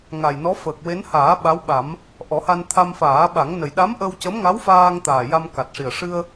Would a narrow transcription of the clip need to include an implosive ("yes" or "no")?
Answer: yes